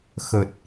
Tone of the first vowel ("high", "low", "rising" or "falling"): low